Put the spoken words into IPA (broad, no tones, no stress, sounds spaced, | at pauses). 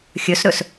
xʲ ɵ s ɾ ɵ s